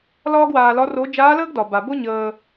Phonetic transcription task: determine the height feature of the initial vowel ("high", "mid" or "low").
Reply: low